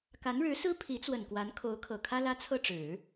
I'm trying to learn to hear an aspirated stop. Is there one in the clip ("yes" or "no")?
yes